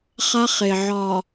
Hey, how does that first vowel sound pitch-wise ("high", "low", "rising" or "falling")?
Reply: high